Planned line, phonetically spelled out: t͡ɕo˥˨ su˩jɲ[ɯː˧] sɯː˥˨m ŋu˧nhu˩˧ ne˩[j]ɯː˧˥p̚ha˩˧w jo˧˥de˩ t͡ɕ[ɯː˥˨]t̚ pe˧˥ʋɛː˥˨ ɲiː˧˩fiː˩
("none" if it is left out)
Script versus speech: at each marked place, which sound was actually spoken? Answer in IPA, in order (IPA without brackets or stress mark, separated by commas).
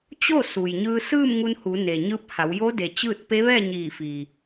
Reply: ɯː˧, ɲ, ɯː˥˨